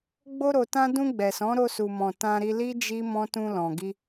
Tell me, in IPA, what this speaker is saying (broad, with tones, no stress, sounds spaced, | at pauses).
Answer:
ɡ͡b o˧ ɾ o˨ t ã˧ d ũ˧ ɡ͡b ɛ˨ s ɔ̃˨˦ ɾ o˧ s u˨ m ɔ̃˨ t ã˧ ɾ i˧ l i˦ d͡ʒ i˦ m ɔ̃˦ t ũ˧ l ɔ̃˨ ɡ i˧